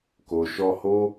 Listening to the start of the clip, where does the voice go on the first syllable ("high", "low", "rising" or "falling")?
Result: low